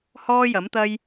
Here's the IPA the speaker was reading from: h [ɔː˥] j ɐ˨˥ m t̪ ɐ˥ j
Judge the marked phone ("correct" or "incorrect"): correct